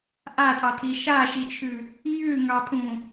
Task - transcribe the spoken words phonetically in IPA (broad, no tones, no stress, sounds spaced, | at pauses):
ʔ a tʼ ɑ t̪ʰ i ʃ a ʃ i t͡ʃʰ ʉ | j ʉ ŋ ɑ pʰ ũ